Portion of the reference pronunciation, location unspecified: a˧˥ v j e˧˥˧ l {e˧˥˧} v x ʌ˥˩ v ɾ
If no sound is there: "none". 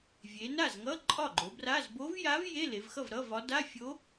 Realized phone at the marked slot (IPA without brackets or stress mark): e˩˧